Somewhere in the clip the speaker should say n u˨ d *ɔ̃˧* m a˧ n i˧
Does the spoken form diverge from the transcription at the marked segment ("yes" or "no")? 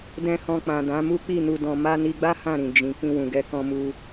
yes